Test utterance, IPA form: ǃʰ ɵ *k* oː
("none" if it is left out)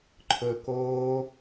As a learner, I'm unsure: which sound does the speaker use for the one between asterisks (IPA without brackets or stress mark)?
k